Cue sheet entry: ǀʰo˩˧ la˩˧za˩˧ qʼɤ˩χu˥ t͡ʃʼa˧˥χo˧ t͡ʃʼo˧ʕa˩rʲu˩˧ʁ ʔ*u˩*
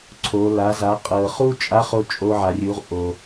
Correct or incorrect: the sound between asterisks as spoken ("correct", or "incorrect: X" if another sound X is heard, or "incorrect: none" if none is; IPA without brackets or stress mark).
incorrect: o˩